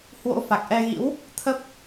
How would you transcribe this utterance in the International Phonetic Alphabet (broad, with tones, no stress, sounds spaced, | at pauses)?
h w o̰˧˥ f a˨˩ k̚ ʔ ɛ˧ ɣ ḭ˧˥ w | t̪ʰ ə˦˥ p̚